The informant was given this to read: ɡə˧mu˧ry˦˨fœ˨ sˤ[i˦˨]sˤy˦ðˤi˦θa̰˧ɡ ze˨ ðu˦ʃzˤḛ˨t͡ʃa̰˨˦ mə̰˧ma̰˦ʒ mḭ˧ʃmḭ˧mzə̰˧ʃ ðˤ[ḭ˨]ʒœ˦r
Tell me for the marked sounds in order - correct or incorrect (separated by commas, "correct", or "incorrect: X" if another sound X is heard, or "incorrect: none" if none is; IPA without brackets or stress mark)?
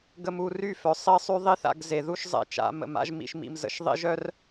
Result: correct, incorrect: ḭ˦